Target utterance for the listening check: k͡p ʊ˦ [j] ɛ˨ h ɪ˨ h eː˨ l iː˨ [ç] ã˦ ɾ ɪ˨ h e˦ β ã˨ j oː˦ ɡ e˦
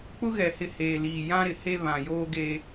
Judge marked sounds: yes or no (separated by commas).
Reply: no, no